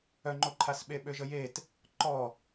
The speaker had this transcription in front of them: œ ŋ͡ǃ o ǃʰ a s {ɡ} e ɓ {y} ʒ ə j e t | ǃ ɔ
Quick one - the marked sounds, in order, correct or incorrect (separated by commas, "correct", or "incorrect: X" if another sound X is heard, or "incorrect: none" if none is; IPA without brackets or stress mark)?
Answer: incorrect: ɓ, incorrect: ø